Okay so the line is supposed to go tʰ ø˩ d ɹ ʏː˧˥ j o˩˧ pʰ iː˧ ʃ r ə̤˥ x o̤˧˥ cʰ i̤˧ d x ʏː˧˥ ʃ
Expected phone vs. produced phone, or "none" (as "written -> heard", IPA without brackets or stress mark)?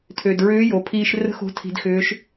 cʰ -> tʰ